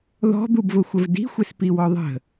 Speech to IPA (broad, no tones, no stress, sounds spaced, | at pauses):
ð ɔ̤ d̪ u b v ʊ xʷ ə v d i̤ xʷ e s p i w ɔ ðˤ ə̤